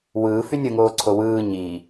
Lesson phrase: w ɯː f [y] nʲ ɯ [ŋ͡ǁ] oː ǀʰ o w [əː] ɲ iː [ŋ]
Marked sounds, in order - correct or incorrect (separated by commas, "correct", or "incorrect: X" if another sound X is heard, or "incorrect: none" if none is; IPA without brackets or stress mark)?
correct, incorrect: ŋ, incorrect: ɯː, incorrect: none